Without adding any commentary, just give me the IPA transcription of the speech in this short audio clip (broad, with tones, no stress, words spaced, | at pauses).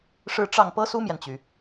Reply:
ʂɻ̩˥˧ʈ͡ʂɑ˥˩ŋ pɤ˥su˥mjɛ˨nt͡ɕy˩